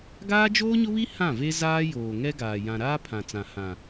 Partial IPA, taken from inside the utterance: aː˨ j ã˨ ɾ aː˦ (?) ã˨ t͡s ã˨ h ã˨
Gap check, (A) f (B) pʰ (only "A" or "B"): B